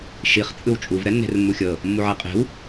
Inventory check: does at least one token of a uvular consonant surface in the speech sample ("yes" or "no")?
yes